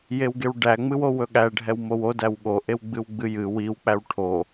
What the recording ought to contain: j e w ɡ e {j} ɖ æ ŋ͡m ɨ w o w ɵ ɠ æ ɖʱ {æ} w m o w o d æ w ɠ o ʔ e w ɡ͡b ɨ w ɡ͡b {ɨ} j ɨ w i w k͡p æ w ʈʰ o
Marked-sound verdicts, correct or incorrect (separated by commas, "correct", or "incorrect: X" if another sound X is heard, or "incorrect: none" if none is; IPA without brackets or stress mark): incorrect: w, incorrect: ɛ, correct